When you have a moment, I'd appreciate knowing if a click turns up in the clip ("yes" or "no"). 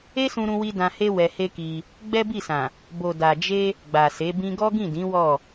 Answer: no